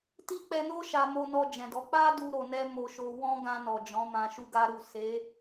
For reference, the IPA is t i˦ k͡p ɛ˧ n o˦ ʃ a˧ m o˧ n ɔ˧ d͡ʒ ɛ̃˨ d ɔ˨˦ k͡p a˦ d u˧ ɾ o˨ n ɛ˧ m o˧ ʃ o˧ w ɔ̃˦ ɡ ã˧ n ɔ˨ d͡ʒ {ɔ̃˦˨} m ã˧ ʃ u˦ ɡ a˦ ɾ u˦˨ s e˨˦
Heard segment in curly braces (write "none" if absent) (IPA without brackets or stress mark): ɔ̃˨˦